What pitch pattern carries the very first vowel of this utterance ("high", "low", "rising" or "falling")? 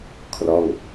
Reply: falling